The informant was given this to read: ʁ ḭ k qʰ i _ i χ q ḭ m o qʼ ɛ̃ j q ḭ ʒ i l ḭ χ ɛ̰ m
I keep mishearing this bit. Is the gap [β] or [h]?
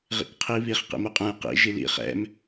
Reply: β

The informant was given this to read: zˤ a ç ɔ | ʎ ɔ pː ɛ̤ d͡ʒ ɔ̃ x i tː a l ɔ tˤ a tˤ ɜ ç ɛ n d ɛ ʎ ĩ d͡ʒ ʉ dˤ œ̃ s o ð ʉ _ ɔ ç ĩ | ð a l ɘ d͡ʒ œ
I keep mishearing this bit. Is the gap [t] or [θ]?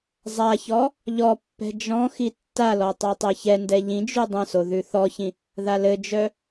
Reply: θ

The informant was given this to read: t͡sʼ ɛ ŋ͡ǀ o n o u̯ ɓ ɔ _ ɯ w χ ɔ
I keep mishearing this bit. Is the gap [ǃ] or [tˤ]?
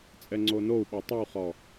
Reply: tˤ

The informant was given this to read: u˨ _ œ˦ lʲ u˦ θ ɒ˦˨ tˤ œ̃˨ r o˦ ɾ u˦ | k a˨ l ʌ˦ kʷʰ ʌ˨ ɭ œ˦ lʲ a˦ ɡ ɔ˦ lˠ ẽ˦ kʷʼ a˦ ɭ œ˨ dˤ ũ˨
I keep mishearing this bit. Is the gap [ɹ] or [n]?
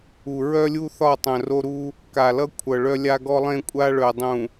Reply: ɹ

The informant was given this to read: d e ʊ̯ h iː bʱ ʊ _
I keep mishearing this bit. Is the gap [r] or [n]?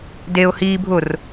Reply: r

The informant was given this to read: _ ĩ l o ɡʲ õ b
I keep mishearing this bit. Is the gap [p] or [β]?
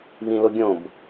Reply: β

